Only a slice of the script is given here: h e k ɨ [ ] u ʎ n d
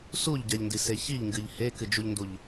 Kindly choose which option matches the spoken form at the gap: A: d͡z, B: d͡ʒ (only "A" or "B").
B